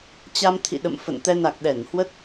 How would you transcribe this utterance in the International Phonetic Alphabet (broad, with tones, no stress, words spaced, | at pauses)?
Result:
t͡ɕa˧mt̪ʰḭ˧˨ ɗə̰˧˨m fə̰˧˨nt̪ɛ˧ na˨˩k̚ɗɛ˧˩n hwə˦˥t̚